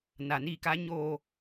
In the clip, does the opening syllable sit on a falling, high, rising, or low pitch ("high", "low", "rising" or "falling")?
low